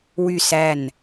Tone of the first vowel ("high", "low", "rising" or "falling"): falling